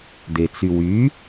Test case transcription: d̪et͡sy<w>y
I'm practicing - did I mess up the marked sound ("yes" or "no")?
no